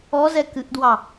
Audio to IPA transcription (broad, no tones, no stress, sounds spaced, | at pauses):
ɔ z ɛ k ɨ ʔ d w ɑ